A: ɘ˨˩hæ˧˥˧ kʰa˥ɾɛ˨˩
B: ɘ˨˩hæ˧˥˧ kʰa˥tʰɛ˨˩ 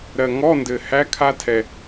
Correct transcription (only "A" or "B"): B